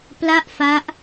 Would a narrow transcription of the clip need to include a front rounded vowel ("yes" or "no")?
no